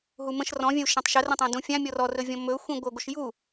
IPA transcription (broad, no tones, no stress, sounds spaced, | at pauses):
ɦ u m ə̃ ʃ r ɔ̃ vʲ ə̃ u̯ ʃ ã tˤ ʃ ə r ə̃ tˤ ã d ũ fʲ ã mʲ ɔ r ɔ r ɵ vʲ ɔ̃ m ɵ xʷ ĩ ɡʷ ɜ ɡʷ ɘ ʃ j u